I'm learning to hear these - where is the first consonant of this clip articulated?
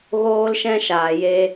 velum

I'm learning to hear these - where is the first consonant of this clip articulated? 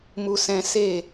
lips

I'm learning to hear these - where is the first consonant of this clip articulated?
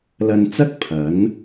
tongue tip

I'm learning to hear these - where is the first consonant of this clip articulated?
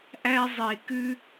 throat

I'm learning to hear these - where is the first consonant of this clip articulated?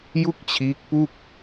palate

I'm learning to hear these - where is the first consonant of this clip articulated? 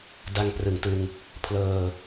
tongue tip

